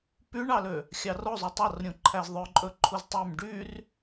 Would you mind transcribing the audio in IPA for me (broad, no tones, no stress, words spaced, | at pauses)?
pyɳɑlø | xʲɑro zˤutˤɑrɾʲũǃʰæz ðˤœǃʼɵ ǃʰuztˤøm ɖyr